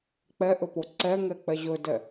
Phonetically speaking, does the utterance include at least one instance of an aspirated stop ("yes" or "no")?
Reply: no